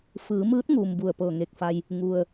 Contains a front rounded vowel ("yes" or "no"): no